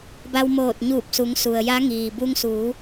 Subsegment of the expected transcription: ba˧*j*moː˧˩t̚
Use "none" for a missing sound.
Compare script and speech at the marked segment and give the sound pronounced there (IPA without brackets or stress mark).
w